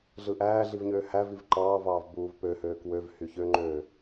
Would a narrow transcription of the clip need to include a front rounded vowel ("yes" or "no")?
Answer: yes